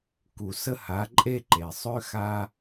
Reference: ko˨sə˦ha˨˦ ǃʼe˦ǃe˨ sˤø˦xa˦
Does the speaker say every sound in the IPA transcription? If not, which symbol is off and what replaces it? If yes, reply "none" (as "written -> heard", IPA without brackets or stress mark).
o˨ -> u˨